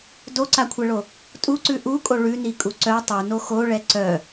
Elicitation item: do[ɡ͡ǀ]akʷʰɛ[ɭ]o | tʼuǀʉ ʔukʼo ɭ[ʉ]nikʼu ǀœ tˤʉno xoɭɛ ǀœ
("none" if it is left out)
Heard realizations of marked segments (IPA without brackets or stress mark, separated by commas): ǀ, ɭ, ʉ